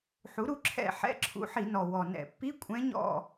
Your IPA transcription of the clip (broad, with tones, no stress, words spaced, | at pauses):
ħu˩˥ɾu˧˥ǁʰɛ̰˦˨ħɛ̰˧˥˧ ǁʰṵ˧˥ ħi˧˩˧nɔ˨˩wɔ˨˩ nɛ̰˧˩˧ pːi˧˥˧kʷʼɛ̃˧˥ ɲɔ̰˦˨